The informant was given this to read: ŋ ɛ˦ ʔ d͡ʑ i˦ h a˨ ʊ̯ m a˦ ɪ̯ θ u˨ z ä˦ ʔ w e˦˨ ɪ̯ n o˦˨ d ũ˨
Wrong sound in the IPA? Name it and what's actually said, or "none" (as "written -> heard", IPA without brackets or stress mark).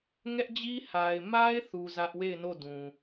ʊ̯ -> ɪ̯